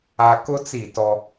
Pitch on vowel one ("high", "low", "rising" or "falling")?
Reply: high